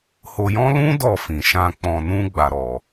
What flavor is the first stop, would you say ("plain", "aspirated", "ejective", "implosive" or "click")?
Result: plain